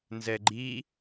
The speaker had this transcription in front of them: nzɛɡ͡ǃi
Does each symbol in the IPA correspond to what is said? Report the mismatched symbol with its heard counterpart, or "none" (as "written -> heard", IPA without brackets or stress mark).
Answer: none